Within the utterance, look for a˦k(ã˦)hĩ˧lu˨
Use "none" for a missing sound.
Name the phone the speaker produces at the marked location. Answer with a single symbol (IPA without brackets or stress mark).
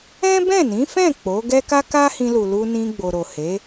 a˦